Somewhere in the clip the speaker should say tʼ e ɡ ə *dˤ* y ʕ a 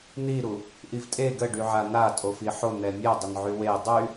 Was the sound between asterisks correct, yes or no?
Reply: no